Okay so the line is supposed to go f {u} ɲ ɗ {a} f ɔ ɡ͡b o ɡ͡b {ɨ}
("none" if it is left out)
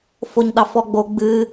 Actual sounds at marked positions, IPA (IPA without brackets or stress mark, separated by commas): o, ɑ, ɨ